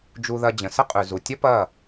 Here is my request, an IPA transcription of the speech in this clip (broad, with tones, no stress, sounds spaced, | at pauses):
d͡ʒ u˧ ð ɐ˧ d͡ʑ ə̃˨ s ə˦ qʼ ʉ˨ z u˨ tʲ ɐ˦ p ɐː˦˨